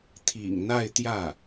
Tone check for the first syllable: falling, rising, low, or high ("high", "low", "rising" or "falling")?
low